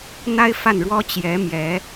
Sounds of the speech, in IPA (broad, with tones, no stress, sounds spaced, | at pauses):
n̪ a˥ ɪ̯ f a˥˩ n ɻ w ɔ˥ t͡ɕ j ɛ˧˥ m j ɛ˧˥